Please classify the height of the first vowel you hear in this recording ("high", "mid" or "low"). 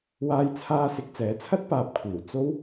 low